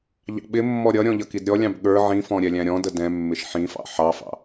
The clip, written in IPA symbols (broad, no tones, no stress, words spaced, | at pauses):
ʎɑ̰ɓɪmːɔ ɾʲʌɾʲɔ̃ ʎʌkidɾʲɔlʲɑ̃b ɠə˞ ʕĩfɔ̃ ɾʲɛlʲæ̃ɾʲɔ̃də dɛ̃ mːɪʃħĩfɑ̰ ħɑfɑ̰